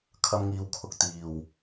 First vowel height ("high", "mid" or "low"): low